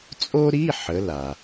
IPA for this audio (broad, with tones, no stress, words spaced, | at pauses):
t͡sʼo˥ɾi˧˥˧ ħə˨˥la˩